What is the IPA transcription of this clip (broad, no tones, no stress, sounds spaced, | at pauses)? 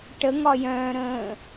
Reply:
ʈ ə ŋ ɒ j œ̃ː ɾ ə̃ː